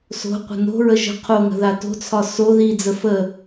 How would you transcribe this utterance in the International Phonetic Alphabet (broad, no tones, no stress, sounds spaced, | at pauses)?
s o̤ qʷ ə̤ n o̤ ɹ ə ʒ ə̤ qʰ o ŋ ə̤ ð a t o̤ t͡sʰ ɒ s o ð i d͡z ə f ə